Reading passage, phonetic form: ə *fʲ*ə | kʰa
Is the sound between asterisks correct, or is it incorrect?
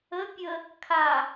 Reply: incorrect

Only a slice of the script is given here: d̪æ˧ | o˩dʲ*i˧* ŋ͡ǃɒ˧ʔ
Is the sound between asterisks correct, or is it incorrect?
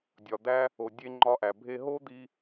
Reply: incorrect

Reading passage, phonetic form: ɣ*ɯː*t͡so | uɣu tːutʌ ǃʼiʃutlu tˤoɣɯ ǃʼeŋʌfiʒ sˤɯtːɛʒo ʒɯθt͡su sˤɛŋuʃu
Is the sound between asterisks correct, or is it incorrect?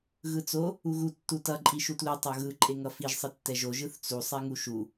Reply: incorrect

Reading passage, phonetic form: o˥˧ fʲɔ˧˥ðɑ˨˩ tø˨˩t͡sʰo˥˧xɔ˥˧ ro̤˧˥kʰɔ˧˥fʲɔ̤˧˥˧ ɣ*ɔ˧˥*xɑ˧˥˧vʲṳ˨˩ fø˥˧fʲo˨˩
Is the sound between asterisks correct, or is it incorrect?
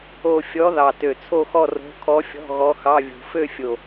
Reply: correct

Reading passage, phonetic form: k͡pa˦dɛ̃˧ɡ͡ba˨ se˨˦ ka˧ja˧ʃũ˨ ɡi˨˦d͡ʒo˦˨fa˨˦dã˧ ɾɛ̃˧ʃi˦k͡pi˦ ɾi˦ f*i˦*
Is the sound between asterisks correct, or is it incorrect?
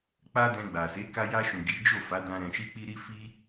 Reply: correct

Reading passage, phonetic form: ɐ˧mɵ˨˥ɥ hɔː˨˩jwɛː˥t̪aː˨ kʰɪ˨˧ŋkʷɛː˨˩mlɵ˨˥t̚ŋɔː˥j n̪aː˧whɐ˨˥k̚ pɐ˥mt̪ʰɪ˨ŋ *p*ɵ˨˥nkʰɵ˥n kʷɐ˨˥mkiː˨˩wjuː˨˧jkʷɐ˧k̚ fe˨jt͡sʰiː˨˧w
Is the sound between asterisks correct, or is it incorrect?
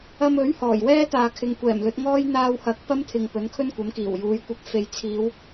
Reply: correct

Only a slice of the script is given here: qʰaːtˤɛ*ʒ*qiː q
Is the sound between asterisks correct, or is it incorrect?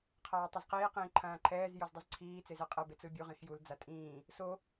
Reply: incorrect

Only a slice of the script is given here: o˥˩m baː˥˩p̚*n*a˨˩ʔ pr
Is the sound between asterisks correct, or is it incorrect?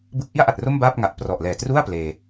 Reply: incorrect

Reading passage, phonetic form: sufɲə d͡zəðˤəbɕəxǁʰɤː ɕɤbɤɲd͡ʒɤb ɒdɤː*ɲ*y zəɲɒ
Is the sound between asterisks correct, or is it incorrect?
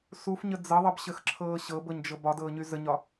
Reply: correct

